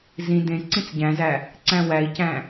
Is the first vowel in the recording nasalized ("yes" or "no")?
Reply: yes